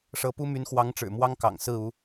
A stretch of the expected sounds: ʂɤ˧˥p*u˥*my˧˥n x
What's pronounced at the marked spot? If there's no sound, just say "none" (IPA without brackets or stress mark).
u˥